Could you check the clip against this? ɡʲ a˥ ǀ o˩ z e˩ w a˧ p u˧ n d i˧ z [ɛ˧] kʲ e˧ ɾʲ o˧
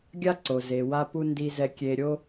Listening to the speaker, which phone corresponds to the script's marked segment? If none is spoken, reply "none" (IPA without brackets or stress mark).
ɛ˧